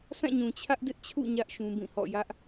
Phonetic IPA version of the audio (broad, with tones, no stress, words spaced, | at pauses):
sã˦˨ɲũ˨ t͡ɕʰä˦ʔdɪ˦ʔt͡ɕʰṵ˦˨ ɲä˦ʔ ʃũ˦bĩ˦˨hɔ̰˦˨ jä˦ʔ